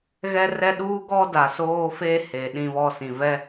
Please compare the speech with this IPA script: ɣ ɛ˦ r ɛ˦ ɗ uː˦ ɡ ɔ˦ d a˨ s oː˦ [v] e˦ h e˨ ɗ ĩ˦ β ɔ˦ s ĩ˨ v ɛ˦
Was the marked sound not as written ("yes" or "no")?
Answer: yes